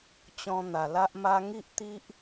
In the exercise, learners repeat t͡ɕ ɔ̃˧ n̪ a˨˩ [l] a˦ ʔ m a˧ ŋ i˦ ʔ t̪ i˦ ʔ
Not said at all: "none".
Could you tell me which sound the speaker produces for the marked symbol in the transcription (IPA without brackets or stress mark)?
l